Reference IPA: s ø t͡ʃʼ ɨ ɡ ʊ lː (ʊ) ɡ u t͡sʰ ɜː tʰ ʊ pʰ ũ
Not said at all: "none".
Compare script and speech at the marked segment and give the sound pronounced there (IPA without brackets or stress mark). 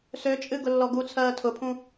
ɔ